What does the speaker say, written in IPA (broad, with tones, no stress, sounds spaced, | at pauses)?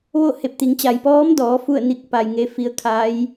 ʋ o˥˨ h e˧˩ p̚ t̪ i˩˧ ŋ t͡ɕ a˩ j p ɔː˧˥ m d ɔː˩˧ f u˥˨ ə̯ n i˧˥ k̚ p a˩ j ŋ e˧ f i˧ ə̯ kʰ a˧˥ j